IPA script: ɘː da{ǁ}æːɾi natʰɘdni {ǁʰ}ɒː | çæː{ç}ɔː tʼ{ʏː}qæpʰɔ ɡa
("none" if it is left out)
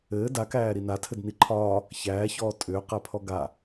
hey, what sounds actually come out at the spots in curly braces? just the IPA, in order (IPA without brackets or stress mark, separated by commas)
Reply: k, ǃʰ, ç, ʏː